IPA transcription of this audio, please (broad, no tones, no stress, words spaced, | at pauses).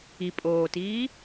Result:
i pʼoːtiː